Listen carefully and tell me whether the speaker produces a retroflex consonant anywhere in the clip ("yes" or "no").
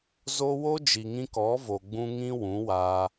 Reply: no